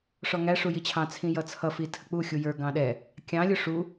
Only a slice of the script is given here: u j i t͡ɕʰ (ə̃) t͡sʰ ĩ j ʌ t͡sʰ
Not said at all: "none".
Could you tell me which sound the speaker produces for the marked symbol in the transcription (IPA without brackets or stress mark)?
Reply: ɑ̃